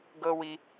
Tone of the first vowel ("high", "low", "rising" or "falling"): high